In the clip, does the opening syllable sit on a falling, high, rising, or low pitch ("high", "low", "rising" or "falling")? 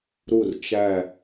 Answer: falling